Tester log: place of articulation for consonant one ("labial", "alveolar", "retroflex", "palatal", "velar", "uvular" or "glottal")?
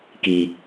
velar